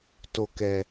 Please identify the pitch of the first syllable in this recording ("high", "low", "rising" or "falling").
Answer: low